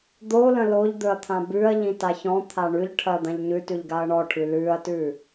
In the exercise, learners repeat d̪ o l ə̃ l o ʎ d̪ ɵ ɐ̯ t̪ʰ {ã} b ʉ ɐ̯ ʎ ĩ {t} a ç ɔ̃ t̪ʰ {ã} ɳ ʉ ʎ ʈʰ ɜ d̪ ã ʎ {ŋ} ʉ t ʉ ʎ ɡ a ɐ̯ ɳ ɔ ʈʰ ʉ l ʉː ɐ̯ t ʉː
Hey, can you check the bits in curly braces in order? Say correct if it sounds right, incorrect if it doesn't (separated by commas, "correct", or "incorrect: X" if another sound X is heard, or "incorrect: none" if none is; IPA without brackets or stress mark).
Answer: correct, correct, incorrect: a, incorrect: ɲ